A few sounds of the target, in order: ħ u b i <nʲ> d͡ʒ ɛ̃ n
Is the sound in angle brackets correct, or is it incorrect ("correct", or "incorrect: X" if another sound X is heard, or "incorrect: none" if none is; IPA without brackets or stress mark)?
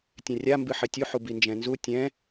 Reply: incorrect: n